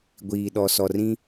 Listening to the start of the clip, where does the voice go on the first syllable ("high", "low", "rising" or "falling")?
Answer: low